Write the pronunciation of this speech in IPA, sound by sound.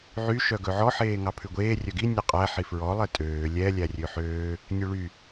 ʕy ʃœɡɵʕɔ ħeːŋɑpʰʉɡʷeː rʲœɡi nʲɛqʼæ ħifɹɔ lˠetʼøː lʲɛ lʲærʲøħøː | nʲʉɭy

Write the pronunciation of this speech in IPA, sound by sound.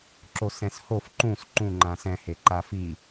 ǁosɛ̃shof ǃũs ǃũ ŋ͡ǃãsɛ̃ heǃafi

